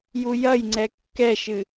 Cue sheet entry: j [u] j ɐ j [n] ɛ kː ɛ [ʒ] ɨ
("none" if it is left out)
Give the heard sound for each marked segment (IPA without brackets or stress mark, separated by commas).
u, ŋ͡ǀ, ʃ